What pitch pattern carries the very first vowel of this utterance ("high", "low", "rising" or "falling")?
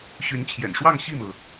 rising